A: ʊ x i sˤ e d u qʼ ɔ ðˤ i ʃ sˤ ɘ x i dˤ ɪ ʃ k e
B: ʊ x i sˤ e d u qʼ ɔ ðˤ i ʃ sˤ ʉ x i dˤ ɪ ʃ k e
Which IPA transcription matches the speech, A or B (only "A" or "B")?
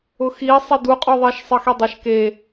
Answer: A